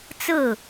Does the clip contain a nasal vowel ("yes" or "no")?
no